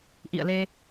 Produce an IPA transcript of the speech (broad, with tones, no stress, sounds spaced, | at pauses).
ʔ ḭ˧˨ ə̯ l e˧